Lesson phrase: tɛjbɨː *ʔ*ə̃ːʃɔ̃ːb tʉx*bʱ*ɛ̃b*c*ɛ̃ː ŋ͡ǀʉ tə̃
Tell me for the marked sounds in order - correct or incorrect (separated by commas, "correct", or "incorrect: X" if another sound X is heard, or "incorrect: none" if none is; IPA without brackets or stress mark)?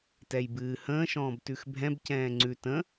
incorrect: h, correct, correct